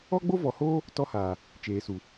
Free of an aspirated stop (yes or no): yes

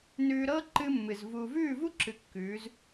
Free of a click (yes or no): no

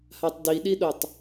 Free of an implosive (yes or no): no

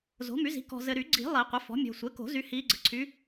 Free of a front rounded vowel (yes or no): no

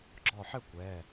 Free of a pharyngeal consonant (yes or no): no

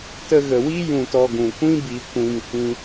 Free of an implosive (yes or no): yes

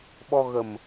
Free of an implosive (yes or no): no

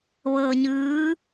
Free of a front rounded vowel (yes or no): yes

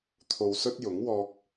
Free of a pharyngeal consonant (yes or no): yes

